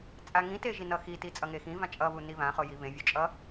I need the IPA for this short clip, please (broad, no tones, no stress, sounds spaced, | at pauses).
t͡sʼ a ŋ ĩ t e ʒ i n ʌ x i t i t͡sʼ ʌ ŋ e x ĩ v ã t͡ʃʼ ʌ β u n i β ã χ o j i β ẽ vʲ o t͡ʃʼ ʌ